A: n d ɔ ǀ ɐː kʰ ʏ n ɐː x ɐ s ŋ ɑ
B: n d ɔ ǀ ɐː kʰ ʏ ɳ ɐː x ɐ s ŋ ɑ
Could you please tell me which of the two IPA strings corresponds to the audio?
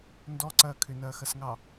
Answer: A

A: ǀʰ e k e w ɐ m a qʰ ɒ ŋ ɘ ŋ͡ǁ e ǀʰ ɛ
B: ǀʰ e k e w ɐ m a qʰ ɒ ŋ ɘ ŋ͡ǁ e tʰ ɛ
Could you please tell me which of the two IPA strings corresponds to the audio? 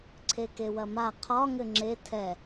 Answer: B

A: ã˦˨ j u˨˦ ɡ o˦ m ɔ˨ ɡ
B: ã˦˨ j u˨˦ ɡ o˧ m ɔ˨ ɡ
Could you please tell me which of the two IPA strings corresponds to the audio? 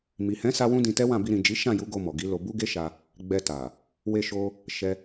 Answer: B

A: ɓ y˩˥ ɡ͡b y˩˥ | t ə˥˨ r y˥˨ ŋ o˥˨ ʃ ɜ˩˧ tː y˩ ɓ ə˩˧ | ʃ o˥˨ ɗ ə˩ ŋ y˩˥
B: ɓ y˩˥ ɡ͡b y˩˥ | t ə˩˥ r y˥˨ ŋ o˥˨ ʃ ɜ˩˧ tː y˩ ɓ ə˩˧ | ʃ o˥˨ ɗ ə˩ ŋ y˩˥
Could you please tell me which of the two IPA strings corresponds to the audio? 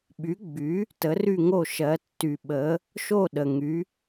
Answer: B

